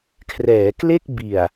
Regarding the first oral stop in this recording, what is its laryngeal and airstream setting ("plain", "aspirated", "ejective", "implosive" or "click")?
aspirated